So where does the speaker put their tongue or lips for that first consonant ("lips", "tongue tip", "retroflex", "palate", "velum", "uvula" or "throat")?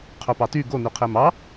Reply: uvula